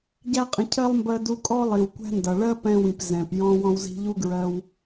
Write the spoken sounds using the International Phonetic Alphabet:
ɟ æ˥ qʼ ə̃˧ cʰ ɜ˥ lˠ m b ɜ˧ d u˧ kʼ ɔ˥ lˠ i˩ w kʷ æ̤˥ n d ʌ˩ ɭ ɜ˥ p ɛ̃˧ w ĩ˩ p z ɛ̃˩ p j ɔ̃˧ w ɔ̃˧ w z i̤˧ ʎ u˥ ɡ ɹ ɜ˧ w

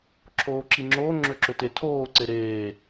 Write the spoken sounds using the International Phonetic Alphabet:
ǁʰ oː ǁ i ŋ͡ǁ oː ŋ͡ǁ ø ǁ ø t e tʰ oː ǀ e ɾ eː

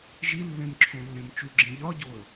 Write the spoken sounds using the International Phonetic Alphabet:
ʒ i lː ẽ m ǁʰ õ lː ẽ m t͡ʃ u ɡ͡ǁ ĩ ʎ ɒ ɟ o ə̯

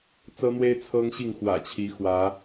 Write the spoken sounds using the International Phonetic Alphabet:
t͡s ɤ˦ n̪ w e˦ ɪ̯ t͡sʰ ɤ˦ ŋ ɕ i˥˨ ŋ x w ä̰˨˩ t͡ɕʰ i˨˦ x w ä˨˦

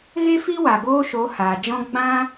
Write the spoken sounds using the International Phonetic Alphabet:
ɣ e˦ f i˦ w a˨ ɡ oː˦ ʃ o˨˦ h aː˨ d͡ʒ ɔ̃˦ ɡ͡b ã˦

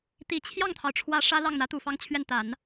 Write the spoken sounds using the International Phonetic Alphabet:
t̪ i˨˩ t͡ɕʰ j ɑ˥˩ ŋ t̪ʰ ɑ˩ ʊ̯ ʈ͡ʂʰ w ä˧˥ ʂ ä˥ l ɑ˥˩ ŋ n̪ ä˧˥ t̪ u˨˩ f ɑ˥˧ ŋ t͡ɕʰ ɥ ɛ˥˩ n t̪ a˨˩˦ n

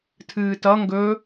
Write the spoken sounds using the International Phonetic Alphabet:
tʰ ɨː t ʌ ŋ ɡ ɵ

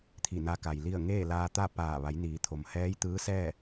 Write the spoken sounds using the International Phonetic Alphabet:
t̪ʰ i˧˩ n a˧ k a˩ j l i˥˨ ə̯ ŋ eː˥˨ l aː˧ t̪ a˥˨ p aː˧˩ ʋ a˩˧ j n iː˩˧ t̪ʰ o˩ m h ɛː˧˥ j t̪ ɯː˧˥ s ɛː˥˨

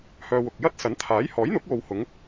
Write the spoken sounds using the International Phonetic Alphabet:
h œː˧ w ʊ˨ k̚ j ɐ˥ t̚ s ɐ˨˥ n t̪ʰ aː˨˥ j h ɔː˨˥ j n̪ ʊ˨˥ k̚ w o˨ w h ʊ˨˧ ŋ

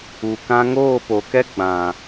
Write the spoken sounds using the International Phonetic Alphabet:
u˨ k ã˧ ŋ oː˦˨ p o˨ k ɛ˦ ɡ͡b ã˨

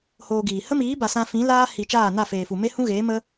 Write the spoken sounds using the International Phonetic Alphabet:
h oː˧ ɡ iː˨ h ə˦ m iː˨˦ b a˨ s ã˧ f ĩ˨˦ l aː˦ h i˨ t͡ʃ aː˦˨ n a˦˨ f eː˨ f u˨ m e˦ h ũ˦ ɣ eː˨˦ m ə˦

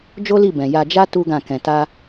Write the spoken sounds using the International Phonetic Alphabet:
d͡ʒ o˦ l i˦˨ b ɛ̃˨ j a˧ d͡ʒ a˦ t u˦ ɡ ã˦˨ k ɛ̃˧ t a˦

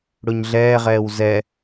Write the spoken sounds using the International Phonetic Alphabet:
ɽ ʊ ɲ ɮ ɛː ʁ ɛː w z ɛ

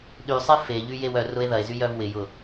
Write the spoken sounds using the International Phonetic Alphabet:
ɗ y sˤ e f e ʎ y j e w œ r ʊ e̯ ð ɐ e̯ z y j œ v w ɪ j ʊ

